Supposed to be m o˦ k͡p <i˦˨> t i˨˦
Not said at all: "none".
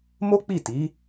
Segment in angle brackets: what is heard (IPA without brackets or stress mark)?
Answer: i˦˨